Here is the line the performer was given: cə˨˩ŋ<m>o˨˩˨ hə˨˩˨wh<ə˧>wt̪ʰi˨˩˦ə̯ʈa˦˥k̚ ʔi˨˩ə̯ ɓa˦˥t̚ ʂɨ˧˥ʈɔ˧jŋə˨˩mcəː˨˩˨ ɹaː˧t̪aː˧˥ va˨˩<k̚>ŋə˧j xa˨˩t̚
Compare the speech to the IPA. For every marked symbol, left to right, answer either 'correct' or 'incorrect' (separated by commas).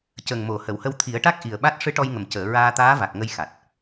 correct, correct, correct